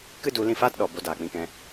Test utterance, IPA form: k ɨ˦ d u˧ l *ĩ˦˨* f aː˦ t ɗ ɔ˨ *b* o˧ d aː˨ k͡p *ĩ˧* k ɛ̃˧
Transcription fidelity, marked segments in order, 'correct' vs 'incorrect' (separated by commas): correct, correct, correct